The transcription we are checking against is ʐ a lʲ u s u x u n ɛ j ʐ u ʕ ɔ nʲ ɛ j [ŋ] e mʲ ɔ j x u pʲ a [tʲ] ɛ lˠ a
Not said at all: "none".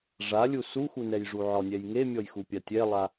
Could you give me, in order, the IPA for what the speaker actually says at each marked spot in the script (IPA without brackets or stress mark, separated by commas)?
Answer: ŋ, tʲ